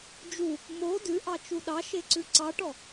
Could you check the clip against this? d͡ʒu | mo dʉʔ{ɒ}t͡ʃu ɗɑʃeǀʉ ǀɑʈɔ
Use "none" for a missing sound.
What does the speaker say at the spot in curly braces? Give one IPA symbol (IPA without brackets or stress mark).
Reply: ɑ